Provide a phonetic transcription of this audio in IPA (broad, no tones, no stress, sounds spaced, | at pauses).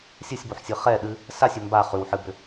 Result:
sʲ ɨ sʲ b o ħ sʲ ɨ χ ɛ ɗ ɨ | s a sʲ ʏ m b a χ ʉ w ħ ɨ b ʏ